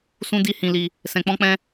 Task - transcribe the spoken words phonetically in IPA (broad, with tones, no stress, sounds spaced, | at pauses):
s ũ˦ d i˦ h ĩ˧ l i˧ | s ɛ̃˧ k͡p ɔ̃˦ k͡p ɛ̃˦